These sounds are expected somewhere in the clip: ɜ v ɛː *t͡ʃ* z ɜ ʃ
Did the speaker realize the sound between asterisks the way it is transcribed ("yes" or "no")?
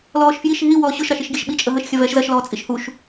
no